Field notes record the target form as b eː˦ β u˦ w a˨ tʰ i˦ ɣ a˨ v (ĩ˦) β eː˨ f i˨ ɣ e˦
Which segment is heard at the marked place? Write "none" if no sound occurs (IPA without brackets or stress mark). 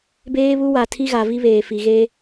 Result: i˦